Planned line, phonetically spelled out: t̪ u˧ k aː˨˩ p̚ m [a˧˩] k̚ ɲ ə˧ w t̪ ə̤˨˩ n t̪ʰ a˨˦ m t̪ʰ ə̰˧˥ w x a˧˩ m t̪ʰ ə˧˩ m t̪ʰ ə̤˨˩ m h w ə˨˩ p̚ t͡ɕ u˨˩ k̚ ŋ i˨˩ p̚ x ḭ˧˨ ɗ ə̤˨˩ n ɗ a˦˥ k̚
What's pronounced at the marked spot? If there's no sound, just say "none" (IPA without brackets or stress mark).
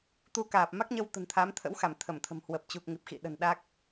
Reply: a˦˥